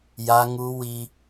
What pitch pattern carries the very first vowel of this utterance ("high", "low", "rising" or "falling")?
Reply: high